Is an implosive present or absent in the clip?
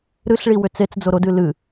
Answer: absent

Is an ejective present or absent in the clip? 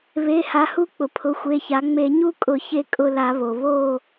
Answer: present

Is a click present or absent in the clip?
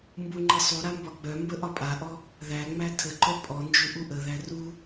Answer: present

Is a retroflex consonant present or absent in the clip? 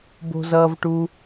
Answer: present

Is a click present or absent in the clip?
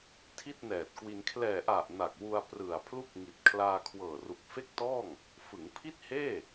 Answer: absent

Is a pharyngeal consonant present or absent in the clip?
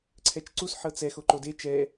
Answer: present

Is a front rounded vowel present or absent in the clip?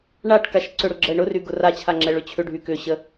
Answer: present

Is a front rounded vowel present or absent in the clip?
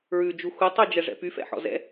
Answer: present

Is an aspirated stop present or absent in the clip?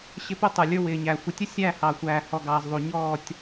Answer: absent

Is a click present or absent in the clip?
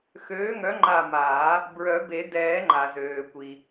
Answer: present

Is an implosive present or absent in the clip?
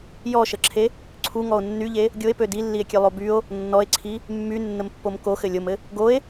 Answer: absent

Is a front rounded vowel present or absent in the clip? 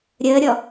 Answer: absent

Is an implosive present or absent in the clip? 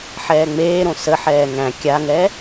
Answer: absent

